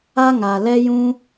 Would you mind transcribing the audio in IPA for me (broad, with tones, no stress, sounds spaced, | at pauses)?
a˦ ŋ a˨ l ɛ˦ j ũ˦